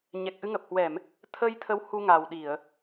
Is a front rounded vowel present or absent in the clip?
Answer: absent